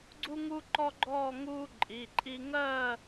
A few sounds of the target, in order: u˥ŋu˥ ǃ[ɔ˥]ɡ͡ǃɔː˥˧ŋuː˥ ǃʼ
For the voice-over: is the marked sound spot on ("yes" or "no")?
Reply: yes